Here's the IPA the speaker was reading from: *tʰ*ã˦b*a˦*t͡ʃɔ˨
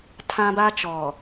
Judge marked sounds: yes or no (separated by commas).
yes, yes